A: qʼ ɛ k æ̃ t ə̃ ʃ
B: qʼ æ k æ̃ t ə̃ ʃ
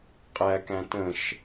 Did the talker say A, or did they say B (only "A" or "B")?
B